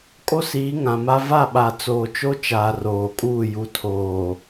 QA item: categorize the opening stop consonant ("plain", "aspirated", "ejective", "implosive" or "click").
ejective